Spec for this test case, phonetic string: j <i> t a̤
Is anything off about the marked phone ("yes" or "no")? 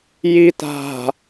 no